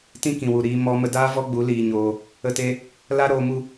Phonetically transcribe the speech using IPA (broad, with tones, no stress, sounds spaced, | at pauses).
t ĩ˦ k ĩ˨ w u˨ ɾ iː˧ m ɔ˦ m ə˧ d aː˦ v ɔ˦ ɡ͡b u˨˦ l iː˧ ɲ oː˧ | ə˦˨ t e˦ | l a˦ ɾ oː˧ m u˧